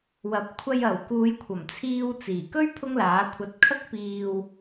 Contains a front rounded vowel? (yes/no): no